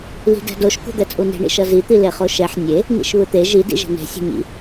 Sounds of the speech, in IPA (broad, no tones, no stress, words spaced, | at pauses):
li̤dɛ̤doʃ kṳd̪ɛt͡sʼuni̤ ɳḭʃʌzi t̪ileχoʃɛħ nʲe | nḭʃβɯt̪e ʒi dḭʒe̤ne̤ sʲe̤ɲḭ